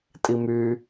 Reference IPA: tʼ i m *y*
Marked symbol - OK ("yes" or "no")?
yes